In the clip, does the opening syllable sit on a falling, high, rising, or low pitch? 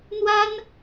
high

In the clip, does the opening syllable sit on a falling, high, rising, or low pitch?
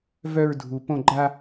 high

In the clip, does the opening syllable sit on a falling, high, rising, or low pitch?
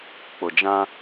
low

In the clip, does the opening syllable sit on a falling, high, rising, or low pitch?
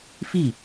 falling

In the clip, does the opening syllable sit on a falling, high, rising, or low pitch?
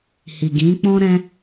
low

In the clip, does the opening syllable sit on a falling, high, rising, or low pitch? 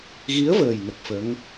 rising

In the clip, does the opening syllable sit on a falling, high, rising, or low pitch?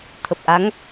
low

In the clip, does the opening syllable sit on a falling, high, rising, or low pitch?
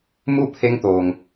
falling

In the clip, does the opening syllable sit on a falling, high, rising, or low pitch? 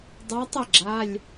rising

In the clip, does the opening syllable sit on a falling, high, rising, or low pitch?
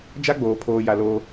high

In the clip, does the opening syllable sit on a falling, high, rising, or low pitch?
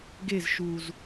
falling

